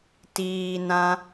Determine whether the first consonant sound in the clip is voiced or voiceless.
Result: voiceless